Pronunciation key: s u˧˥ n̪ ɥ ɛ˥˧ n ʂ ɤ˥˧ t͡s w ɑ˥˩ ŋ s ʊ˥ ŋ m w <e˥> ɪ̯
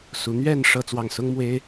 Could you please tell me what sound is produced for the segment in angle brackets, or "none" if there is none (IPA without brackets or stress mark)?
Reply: e˥